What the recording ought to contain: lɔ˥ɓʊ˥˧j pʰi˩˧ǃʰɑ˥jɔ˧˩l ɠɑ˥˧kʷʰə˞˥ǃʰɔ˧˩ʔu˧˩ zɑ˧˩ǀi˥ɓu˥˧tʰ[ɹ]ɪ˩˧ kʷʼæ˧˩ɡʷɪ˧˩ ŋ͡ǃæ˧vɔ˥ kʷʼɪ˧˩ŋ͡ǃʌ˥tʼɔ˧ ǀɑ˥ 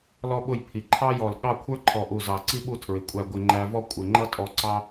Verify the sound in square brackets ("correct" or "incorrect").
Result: correct